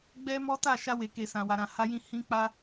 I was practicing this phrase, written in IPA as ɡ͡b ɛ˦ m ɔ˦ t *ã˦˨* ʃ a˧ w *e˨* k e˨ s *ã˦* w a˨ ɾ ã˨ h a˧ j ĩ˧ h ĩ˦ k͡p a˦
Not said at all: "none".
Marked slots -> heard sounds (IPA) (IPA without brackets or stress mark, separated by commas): a˦˨, e˨, ã˨